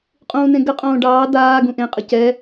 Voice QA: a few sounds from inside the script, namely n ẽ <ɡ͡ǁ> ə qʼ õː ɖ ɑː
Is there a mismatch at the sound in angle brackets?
yes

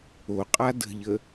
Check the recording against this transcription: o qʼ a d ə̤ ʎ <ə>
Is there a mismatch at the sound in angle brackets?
no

